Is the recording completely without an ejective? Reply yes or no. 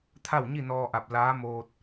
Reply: yes